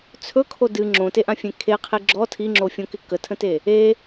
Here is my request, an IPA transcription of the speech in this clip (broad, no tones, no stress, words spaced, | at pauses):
t͡sʰɵkʰo dɨ ŋ͡ǁõteʔãfʲẽ kʰeqʰi ɡ͡ǁɔ tʰiŋ͡ǁofʲõkɪ kətʰə̃te | e